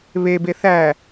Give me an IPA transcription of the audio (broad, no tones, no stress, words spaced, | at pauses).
βebe θæ